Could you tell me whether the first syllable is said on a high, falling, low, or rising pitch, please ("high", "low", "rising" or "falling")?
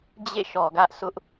falling